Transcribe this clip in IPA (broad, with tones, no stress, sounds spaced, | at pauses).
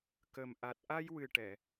k ə˨˩ m ʔ a˨˩ t̚ ʔ a˧ j w ɨ˨˩ ʈ ɛ˨˩˨